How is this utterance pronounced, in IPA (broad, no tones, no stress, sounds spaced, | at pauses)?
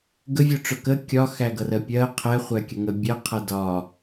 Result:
ɡ ə vʲ ʊ ʈ͡ʂ ʊ k ə kʲ ɒ x æ ɡ ʌ r ɜ pʲ ɜ qʰ ɛ χʷ æ kʲ ə ŋ ə bʲ ɜ qʰ ʌ d ɒ